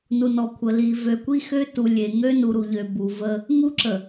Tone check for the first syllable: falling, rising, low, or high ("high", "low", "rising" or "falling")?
low